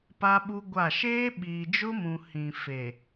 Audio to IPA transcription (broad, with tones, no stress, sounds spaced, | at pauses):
p a˦ ɓ u˦ ɡʷ a˦˨ ʃ eː˦ ɓ iː˨ d͡ʒ ʊ˦ m ũ˨ h ĩ˨ f e˨